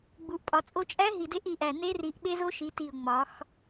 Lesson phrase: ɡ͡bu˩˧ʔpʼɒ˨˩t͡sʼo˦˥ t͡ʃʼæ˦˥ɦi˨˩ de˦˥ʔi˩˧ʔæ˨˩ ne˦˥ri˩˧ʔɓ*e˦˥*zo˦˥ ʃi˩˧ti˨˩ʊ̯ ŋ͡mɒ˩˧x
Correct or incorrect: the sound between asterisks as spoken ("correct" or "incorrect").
correct